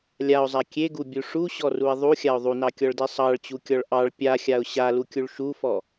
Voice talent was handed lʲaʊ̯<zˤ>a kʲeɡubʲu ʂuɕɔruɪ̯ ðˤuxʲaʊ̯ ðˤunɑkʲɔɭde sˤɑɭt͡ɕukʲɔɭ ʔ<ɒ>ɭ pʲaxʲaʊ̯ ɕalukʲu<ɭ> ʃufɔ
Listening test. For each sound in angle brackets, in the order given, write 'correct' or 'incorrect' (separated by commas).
correct, incorrect, correct